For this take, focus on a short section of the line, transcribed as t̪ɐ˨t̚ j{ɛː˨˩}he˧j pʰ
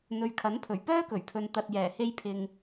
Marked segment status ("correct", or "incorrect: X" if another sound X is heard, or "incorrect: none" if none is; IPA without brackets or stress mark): correct